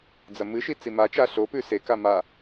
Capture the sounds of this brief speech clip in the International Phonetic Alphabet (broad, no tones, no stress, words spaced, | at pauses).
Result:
d͡zɐmɨʃi t͡simat͡ʃa ɬopʉ seka ma